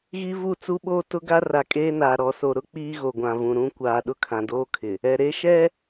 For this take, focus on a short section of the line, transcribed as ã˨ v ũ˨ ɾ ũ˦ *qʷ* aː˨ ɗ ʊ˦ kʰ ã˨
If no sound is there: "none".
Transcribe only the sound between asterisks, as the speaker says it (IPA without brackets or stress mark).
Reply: kʷ